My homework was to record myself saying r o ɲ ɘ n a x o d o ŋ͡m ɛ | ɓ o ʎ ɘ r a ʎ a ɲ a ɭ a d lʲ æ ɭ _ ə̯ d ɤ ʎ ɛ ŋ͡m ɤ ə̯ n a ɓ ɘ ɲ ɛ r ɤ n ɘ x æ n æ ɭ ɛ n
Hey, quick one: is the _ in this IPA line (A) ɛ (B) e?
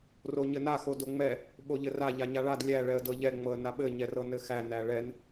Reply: A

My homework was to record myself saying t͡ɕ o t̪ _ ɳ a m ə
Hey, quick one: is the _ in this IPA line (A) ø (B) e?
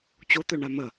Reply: A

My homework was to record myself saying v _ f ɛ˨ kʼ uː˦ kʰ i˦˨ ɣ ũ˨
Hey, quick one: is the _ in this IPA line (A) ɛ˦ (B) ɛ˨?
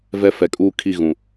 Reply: A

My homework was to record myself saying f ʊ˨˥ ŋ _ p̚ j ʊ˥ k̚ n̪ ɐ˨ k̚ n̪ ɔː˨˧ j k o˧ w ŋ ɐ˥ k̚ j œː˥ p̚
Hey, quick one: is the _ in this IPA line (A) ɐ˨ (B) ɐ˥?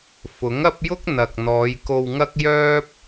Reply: B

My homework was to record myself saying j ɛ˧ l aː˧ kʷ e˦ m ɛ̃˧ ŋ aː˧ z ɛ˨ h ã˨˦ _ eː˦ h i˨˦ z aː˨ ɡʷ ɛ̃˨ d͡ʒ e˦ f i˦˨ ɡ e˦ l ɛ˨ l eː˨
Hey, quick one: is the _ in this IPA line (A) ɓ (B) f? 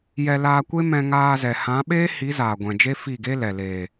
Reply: A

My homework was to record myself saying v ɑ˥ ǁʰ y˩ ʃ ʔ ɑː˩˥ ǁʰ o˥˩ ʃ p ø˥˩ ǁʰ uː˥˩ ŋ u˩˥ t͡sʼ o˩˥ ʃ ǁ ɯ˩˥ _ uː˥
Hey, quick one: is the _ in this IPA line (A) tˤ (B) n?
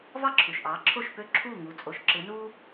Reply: B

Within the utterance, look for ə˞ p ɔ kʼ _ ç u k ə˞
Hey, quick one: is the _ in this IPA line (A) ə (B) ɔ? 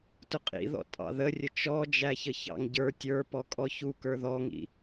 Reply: B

